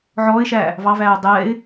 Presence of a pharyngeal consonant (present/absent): present